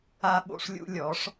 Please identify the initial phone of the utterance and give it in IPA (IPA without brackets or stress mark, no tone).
a